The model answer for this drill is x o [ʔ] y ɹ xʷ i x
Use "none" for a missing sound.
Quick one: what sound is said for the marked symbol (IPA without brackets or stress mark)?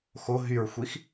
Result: ɦ